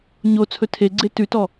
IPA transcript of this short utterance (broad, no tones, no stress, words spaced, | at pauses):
ɲo t͡sʰɵtʰeɡ͡ǀe tʉtɔ